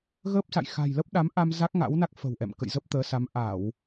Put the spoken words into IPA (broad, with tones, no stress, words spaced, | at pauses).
ɣəː˦˥p̚sa̰˧˨j xa̤˨˩jlə˦˥p̚ɗa˨˦mʔa˧m za˦˥k̚ŋa̰˧˥wna˦˥k̚ fə̤˨˩w ʔɛ̰˧˨m kə̰˧˨jzə˦˥p̚t̪əː˨˦sa˨˦m ʔa˧˩˨w